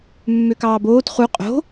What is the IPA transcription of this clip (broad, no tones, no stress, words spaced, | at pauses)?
mːøkɑːboːt χu qʼo̤